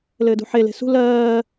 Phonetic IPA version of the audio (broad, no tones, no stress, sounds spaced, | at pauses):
l ɘː d ṳ ħ e l e̤ s ṳ l ɜː